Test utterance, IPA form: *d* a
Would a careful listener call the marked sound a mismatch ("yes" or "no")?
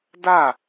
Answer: no